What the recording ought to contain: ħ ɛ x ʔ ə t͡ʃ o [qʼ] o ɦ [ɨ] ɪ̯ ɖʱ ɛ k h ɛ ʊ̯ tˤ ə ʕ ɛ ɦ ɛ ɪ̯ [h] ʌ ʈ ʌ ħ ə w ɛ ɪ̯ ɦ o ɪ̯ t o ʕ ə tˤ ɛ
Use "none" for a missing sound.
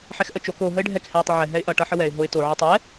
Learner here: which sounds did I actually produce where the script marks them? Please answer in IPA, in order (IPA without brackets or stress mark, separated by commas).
k, ə, ʔ